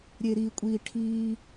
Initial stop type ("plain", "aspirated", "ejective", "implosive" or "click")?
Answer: ejective